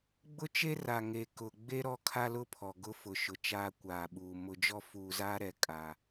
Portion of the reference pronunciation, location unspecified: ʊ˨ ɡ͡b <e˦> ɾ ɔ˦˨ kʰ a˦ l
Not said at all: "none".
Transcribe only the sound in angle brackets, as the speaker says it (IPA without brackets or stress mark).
e˦